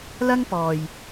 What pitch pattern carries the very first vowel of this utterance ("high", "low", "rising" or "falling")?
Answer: high